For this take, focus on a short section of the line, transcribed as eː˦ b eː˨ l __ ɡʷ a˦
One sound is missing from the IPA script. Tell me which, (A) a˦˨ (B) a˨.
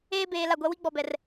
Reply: A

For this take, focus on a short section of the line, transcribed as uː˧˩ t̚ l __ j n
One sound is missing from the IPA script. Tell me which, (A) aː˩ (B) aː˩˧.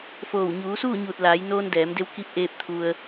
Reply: B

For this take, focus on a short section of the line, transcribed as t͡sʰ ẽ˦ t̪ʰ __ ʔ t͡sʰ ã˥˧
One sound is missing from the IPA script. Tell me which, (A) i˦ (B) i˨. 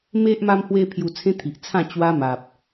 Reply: B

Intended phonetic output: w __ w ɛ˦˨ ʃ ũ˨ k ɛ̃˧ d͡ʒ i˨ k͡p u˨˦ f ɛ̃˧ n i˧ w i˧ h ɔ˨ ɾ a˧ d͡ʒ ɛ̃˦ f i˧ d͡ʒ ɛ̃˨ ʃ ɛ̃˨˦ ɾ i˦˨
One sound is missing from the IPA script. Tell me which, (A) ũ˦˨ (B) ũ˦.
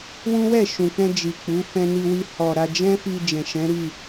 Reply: B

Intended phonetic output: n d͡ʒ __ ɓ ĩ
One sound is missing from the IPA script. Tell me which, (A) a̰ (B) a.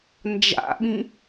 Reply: A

